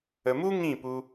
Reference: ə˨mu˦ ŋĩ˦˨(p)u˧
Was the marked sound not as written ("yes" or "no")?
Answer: no